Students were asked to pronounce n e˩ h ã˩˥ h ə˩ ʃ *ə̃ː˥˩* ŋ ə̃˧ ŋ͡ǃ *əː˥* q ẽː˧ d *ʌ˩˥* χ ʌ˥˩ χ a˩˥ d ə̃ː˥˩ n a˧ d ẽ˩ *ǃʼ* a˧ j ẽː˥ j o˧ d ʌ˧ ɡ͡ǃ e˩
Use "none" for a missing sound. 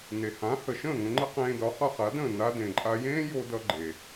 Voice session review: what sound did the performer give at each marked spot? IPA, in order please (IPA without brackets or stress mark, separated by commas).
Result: ə̃ː˥˩, ə˥, ɒ˩˥, ǃʼ